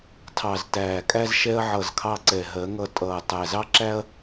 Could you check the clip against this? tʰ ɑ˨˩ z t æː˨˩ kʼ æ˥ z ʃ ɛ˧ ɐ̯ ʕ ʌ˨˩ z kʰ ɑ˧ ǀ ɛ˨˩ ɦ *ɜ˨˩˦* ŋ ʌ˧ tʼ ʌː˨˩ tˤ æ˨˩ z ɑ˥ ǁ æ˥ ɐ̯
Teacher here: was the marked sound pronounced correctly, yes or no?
yes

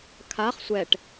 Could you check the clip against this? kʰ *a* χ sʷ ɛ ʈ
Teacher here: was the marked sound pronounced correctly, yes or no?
yes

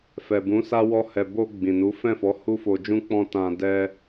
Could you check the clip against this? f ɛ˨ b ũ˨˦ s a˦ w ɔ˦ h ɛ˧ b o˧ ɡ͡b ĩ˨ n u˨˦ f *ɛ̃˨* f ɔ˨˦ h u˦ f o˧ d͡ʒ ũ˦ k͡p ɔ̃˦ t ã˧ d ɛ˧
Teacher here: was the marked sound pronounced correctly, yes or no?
no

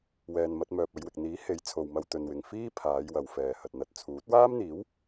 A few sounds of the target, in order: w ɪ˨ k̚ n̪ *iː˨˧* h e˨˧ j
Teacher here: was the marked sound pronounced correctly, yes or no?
no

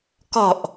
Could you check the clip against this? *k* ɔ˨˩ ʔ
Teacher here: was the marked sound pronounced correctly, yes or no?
yes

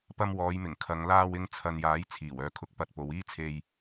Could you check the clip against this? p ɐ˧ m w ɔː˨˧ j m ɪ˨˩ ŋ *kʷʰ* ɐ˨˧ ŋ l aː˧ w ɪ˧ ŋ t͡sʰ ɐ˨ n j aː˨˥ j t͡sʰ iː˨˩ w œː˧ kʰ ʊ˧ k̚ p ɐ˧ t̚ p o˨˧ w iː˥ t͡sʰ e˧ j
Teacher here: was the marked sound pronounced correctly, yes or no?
no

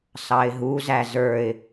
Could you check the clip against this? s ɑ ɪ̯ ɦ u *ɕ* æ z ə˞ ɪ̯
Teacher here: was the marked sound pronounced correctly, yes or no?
no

